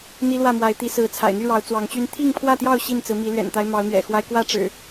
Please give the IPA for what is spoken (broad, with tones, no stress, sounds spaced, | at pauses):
n̪ i˦ l w ä˥˨ m w a˨˦ ɪ̯ t̪ i˨˦ s ɹ̩˨˦ t͡sʰ a̰˨˩ ɪ̯ n̪ y˥˨ ɻ ɑ˨˦ ʊ̯ t͡s w ɑ˨˦ ŋ t͡ɕ y˦ n t̪ʰ i˥˨ ŋ pʰ w ä˥˨ t̪ j ɑ˥˨ ʊ̯ ɕ i˥˨ n t͡s ɹ̩˨˦ m i˨˦ l ɥ ɛ̰˨˩ n t̪ a˦ ɪ̯ m ɑ˨˦ ʊ̯ n̪ ɥ ɛ̰˨˩ x w a˦ ɪ̯ k w ä˥˨ ʈ͡ʂ ɻ̩˨˩